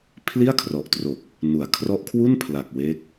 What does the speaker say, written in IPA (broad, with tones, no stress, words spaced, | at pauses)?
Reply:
pʰli˥˩a̯kʰrɔ˨˩ʔtro˨˩k̚ | nu˨˩a̯ kʰrɔ˦˥ʔkʰwu˥˩npʰla˨˩k̚ we˦˥k̚